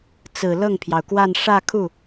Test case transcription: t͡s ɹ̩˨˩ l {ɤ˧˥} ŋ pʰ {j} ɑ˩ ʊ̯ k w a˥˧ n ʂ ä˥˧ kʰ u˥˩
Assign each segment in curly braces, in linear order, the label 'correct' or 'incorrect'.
incorrect: ɤ˥˩, correct

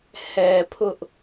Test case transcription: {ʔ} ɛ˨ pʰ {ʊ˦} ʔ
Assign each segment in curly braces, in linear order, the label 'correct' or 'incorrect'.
incorrect: h, correct

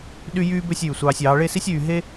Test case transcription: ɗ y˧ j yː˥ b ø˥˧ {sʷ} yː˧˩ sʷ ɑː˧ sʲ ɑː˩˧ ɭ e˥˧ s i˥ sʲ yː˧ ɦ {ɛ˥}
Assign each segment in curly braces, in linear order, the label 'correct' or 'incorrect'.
incorrect: sʲ, incorrect: e˥

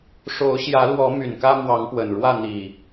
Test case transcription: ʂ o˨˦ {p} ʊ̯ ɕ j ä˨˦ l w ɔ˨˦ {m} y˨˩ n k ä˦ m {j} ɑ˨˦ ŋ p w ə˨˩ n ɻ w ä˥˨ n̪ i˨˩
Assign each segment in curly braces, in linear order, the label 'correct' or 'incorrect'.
incorrect: none, correct, incorrect: w

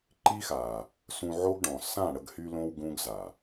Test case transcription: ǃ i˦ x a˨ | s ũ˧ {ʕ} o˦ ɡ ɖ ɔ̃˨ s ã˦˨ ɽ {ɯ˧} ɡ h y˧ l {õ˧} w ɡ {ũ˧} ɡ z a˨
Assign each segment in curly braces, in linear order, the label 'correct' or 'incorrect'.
correct, incorrect: ə˧, correct, incorrect: ũ˦

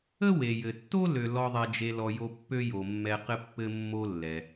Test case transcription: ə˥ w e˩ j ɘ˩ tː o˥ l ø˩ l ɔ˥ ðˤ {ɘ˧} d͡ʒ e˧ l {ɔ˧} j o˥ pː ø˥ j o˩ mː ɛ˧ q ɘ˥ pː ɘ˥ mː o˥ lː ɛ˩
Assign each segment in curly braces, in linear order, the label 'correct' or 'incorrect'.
incorrect: ɛ˧, correct

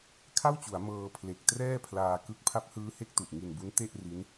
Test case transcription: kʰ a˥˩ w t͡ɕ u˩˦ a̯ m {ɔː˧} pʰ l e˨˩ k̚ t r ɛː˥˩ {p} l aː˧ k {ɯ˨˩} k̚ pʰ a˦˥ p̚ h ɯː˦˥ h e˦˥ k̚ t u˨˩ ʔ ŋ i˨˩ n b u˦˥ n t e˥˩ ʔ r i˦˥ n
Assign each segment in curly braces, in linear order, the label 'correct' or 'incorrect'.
incorrect: ɤː˧, incorrect: pʰ, incorrect: ɯ˦˥

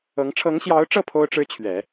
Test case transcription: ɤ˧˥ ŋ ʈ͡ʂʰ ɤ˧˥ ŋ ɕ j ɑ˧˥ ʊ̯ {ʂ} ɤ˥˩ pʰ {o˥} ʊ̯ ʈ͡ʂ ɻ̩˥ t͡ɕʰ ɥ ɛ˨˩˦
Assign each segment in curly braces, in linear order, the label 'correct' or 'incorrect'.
incorrect: ʈ͡ʂ, correct

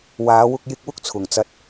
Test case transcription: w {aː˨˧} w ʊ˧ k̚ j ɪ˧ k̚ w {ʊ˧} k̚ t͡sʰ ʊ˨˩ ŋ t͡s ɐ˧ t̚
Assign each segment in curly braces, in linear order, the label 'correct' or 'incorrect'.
correct, incorrect: ʊ˥

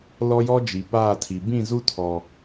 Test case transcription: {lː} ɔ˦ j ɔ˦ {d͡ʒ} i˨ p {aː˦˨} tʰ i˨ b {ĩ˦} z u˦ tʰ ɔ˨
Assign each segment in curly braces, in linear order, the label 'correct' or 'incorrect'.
incorrect: l, correct, correct, incorrect: ĩ˦˨

